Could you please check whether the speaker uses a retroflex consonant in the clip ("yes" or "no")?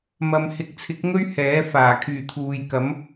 no